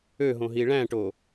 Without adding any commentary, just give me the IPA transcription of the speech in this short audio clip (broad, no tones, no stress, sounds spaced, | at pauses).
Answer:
ø ɦ õ ɦ i ɭ æ̃ ʈ o